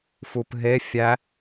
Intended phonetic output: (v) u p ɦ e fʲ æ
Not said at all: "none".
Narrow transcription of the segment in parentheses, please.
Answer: f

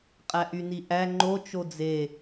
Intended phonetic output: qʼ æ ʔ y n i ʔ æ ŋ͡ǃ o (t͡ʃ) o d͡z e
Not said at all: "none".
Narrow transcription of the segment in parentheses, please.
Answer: t͡ʃ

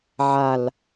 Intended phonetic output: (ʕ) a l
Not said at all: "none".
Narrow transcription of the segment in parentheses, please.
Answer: ʕ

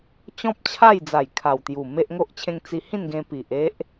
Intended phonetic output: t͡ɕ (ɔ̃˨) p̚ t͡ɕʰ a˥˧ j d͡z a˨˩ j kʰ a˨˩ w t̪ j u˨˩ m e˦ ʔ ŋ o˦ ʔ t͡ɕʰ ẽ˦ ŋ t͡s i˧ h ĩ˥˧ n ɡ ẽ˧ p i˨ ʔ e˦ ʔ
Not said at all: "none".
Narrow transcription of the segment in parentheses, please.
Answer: ɔ̃˦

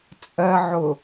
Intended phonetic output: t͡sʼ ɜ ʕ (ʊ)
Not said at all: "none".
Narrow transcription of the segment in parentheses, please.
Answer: ʊ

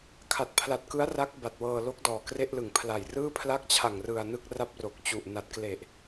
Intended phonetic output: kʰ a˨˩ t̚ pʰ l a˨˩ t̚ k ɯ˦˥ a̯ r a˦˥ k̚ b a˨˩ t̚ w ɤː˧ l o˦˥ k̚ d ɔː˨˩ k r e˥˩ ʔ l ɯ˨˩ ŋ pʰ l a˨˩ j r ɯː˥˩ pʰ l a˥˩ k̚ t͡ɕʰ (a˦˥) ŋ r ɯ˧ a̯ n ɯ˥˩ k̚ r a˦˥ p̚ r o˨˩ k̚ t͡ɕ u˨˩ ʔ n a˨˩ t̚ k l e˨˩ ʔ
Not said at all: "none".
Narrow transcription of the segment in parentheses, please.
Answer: a˨˩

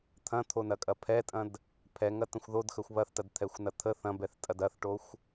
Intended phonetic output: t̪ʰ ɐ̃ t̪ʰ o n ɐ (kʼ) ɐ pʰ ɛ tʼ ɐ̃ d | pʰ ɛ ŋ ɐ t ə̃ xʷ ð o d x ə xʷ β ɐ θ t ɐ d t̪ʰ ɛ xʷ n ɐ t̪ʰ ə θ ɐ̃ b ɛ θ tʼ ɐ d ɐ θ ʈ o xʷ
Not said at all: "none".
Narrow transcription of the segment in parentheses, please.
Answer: kʼ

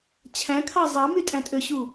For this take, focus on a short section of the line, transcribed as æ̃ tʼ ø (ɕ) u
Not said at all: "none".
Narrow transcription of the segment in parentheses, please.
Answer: ɕ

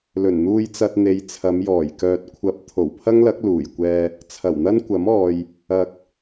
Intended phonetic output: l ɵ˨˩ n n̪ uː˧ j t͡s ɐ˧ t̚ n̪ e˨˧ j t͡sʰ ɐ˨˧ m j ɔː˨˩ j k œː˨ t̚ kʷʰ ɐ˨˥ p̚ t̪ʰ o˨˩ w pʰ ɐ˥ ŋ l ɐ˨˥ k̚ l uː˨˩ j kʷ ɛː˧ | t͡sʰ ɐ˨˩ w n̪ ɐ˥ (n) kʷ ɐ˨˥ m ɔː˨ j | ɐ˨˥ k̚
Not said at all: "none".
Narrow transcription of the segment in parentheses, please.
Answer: n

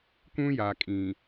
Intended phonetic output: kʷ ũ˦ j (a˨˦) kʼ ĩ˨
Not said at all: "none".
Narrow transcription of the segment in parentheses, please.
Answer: a˨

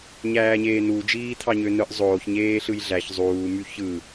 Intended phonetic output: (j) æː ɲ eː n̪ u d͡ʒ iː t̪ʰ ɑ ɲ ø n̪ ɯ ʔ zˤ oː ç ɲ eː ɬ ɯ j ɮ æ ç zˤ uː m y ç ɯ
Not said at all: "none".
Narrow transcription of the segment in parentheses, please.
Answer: ɲ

